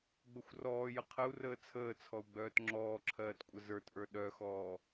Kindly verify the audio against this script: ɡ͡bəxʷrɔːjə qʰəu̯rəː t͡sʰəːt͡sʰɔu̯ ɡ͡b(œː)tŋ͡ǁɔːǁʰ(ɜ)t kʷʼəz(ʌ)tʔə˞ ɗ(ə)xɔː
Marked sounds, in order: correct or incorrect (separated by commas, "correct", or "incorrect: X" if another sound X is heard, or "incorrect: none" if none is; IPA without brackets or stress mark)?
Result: correct, incorrect: ɜː, incorrect: ə˞, incorrect: œ